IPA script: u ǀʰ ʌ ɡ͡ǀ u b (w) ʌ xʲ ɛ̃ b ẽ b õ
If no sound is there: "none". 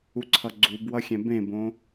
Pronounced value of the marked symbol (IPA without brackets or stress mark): w